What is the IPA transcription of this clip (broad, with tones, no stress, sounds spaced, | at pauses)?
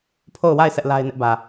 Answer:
pʰ o˦˨ ʊ̯ w a˦˨ ɪ̯ s ɛ˦ ʔ l a˦ ɪ̯ n ɪ˦ ʔ b ä˨